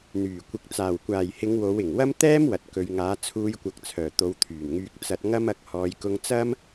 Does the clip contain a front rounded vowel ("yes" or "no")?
yes